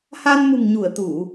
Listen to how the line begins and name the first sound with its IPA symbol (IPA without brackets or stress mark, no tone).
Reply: h